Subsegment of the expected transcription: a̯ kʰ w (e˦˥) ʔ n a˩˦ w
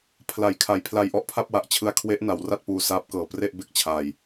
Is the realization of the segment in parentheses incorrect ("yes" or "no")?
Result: no